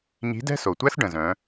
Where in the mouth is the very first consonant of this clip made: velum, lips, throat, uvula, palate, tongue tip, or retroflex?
palate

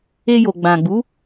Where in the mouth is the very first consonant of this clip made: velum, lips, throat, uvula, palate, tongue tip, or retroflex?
palate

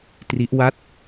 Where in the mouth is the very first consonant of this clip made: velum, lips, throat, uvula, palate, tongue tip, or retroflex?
tongue tip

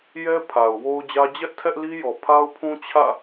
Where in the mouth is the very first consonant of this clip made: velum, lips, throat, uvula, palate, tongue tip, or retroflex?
palate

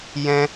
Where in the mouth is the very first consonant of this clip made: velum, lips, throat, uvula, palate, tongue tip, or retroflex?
palate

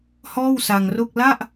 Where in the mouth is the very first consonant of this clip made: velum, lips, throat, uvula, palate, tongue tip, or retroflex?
throat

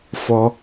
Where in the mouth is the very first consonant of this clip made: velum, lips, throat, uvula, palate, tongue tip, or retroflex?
lips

